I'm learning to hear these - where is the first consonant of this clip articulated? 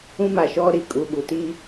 lips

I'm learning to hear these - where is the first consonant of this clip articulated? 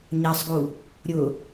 palate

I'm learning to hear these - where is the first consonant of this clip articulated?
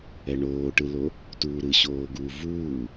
retroflex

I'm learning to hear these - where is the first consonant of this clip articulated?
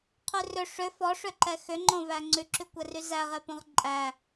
uvula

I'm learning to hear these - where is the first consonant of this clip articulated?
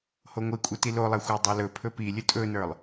throat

